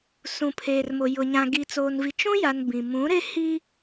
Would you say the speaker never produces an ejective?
yes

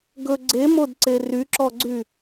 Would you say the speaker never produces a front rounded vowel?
no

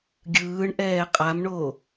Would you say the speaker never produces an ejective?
no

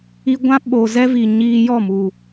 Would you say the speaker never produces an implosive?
no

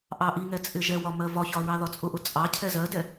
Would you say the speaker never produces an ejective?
no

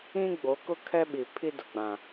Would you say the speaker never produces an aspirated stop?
no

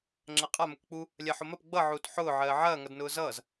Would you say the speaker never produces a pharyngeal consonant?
no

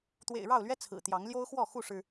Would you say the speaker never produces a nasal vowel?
yes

